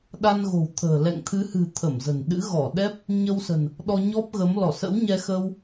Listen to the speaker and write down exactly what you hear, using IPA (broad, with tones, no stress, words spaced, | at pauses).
ɗa˧nɣo̤˨˩wt̪ʰə̤ː˨˩ lɛ̰˧˨ŋt̪ʰɨ˨˦hɨ̤˨˩ t̪ʰə˧˩mzə̤˨˩nɗɨ̰˧˥ ɣɔ˧˩ɗɛ˦˥p̚ | ɲə˧wsə̤˨˩n | ɗɔ˧ ɲɔ˦˥p̚ɣə˨˦m lɔ˧˩sə̰˧˥wɲɛ˧ xə˧w